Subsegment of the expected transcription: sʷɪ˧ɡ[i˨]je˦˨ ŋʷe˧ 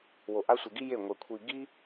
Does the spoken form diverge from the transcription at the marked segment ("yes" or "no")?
yes